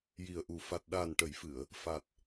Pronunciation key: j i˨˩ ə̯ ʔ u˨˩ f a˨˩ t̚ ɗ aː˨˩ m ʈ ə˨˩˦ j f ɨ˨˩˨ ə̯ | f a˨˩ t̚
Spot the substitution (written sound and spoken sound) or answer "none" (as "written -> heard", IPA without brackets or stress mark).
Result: m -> n